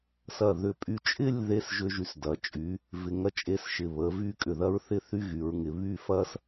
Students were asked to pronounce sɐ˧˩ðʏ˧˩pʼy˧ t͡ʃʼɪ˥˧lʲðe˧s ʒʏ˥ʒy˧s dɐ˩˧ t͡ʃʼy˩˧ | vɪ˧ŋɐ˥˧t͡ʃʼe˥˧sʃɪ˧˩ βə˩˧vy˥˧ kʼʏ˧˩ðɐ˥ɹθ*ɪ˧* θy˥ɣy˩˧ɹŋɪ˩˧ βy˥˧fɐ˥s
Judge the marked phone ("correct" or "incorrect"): incorrect